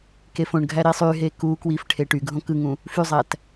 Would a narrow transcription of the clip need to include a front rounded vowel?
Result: yes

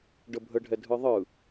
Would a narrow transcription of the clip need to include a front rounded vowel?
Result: no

